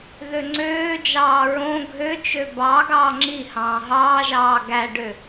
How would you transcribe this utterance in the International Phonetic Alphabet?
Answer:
ð ø ŋ͡ǀ øː d͡ʒ ɑː ɹ õ ɡʱ ø t͡ʃ ø b ɑ ɡ ɑː ŋ͡ǁ i h ɑ̃ː ɦ ɑː ʒ ɑː ɡ æ ɖ ø

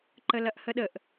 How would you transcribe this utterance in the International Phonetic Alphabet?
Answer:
ǃ ə l ɐ ʔ h ə ɗ ə ʔ

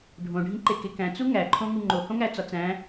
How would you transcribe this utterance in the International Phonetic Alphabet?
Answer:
ɖʱ õ ɖʱ ĩ ǃ e k e k æ̃ t͡s u ŋ æ ǃʰ õ ŋ u ŋ͡ǃ o h õ ŋ æ t͡s ɒ t͡s æ̃

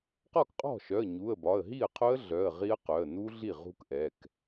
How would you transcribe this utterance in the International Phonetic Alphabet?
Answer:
q ɔ˥˩ k qʼ ɔ̤˥˩ ʃ œ˩˧˩ ə̯ ɲ u˩˧˩ ə̯ b ɒ˩˧˩ ə̯ ɦ i˥˩ ə̯ qʰ ʊ˦˥ ə̯ ɮ œ˩˧˩ ə̯ ʁ i˦˥ ə̯ q œ˩˧˩ ə̯ n u˦˥ ɮ i˥˩ ʁ ṳ˦˥ k ʔ ɛ˩˧˩ k

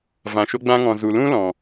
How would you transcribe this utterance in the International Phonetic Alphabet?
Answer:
v ã˨ ʃ o˧ ɡ͡b ã˧ ŋ ɔ̃˨ z u˨ l ũ˦ l ɔ̃˨

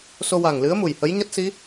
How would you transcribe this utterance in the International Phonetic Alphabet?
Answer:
s o˧ w a˨˩ ŋ l ɨ˧˥ ə̯ m u˨˩ j h ə˧˥ j ɲ a˦˥ t̚ s i˧˥

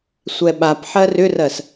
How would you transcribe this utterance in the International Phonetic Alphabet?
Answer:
sʷ ɛ ɓ a p ħ ɜ r ʏ r ɜ s

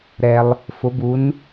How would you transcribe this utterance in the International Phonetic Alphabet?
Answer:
ɾ ɛ˩ lˠ | f ʊ˩˧ b u˩˧ n

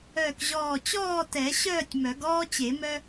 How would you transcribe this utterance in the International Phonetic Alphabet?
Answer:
œː˧˩ k ʑ ɔː˧˩ t͡ɕ ɔː˥˨ t ɛ˨˩˦ ɕ œː˥˨ tʲ m œ˨˩˦ ɡ ɔː˦ t͡ɕ e˨˩˦ m œ˦

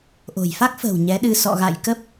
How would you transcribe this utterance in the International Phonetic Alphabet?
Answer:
ʔ o̤˨˩ j f a˦˥ k̚ f ə̤ː˨˩ w ɲ ɛ˨˦ ɗ ɨ˧ s ɔ̰˧˨ ɣ a̰˧˨ j k ə˦˥ p̚

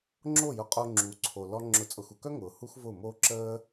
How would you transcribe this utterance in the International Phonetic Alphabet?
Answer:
ŋ͡ǁ oː˦˨ j ʊ˧ qʼ o˧ ŋ͡ǁ u˨˦ ǀʰ o˨ l ɔ˦ ŋ͡ǁ ʊ˨˦ t͡sʼ ʊ˨ x u˨ k œ˦ ŋ ʊː˨ h u˦ x v ʊː˦˨ m oː˦ ǁ əː˦

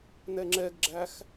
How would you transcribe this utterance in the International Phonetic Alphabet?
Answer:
n ɛ ŋ͡ǁ ɛ ɡ ɡ͡ǁ æ x

